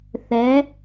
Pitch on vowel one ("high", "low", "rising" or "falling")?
rising